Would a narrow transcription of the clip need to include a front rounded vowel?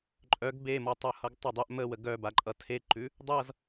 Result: yes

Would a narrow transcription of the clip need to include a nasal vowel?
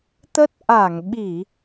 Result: no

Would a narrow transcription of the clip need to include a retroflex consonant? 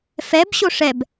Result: yes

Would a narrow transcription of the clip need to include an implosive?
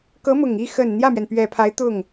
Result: no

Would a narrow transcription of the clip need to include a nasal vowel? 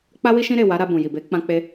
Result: yes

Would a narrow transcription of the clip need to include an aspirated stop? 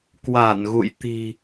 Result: no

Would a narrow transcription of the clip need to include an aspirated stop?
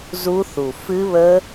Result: no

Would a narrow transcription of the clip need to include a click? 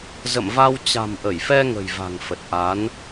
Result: no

